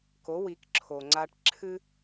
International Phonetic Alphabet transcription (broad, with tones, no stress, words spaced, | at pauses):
ko˩˥ wi˩˥kǁʰo˩ŋ͡ǀa˧ʈ ǁʰɨ˥